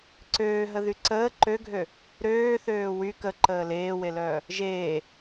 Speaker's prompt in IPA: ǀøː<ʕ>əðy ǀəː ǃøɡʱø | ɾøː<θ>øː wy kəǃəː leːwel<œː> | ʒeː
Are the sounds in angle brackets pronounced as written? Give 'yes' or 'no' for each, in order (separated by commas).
no, yes, yes